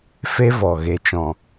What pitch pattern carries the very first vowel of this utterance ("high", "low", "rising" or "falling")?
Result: high